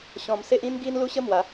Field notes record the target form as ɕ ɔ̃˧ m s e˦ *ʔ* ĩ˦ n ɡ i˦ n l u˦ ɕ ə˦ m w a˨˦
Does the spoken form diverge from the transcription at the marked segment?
no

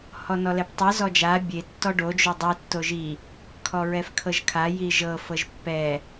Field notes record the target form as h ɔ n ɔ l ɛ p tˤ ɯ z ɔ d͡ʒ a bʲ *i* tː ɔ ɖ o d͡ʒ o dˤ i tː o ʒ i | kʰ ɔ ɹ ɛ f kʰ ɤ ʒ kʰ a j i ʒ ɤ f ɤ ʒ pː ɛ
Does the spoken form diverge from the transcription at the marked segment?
yes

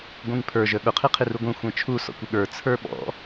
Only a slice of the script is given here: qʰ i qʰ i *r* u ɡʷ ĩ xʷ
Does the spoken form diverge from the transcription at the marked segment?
no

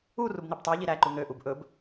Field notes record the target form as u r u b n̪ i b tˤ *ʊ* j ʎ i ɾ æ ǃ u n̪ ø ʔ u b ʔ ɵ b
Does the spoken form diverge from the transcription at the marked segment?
yes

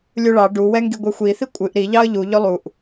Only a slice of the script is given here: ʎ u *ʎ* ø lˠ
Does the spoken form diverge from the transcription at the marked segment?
no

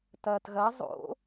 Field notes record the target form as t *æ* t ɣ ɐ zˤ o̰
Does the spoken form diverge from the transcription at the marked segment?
yes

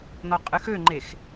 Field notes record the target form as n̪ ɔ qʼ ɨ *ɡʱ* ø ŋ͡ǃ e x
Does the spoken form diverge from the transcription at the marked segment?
yes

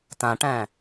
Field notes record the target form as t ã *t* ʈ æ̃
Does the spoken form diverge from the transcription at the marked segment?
yes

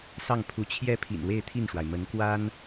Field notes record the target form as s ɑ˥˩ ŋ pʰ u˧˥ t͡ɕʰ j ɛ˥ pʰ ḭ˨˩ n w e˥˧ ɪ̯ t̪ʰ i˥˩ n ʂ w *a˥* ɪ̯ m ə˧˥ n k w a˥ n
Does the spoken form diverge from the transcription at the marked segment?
yes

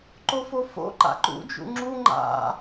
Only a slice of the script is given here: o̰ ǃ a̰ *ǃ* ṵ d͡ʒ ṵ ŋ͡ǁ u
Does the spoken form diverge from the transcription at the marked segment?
no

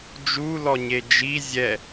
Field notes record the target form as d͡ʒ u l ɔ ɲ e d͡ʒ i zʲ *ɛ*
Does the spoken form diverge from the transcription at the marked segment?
no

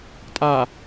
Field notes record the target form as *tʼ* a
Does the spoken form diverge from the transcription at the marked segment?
no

